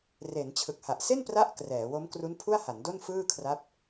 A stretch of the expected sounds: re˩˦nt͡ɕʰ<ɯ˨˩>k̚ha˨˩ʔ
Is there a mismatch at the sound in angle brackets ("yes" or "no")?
no